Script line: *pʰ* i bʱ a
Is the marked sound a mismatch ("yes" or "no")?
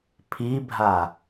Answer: no